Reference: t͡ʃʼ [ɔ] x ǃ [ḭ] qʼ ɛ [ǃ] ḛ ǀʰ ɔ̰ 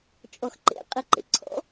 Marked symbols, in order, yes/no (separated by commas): yes, no, yes